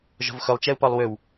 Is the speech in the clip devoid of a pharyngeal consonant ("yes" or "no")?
yes